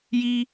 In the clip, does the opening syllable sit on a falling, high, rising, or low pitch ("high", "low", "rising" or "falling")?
high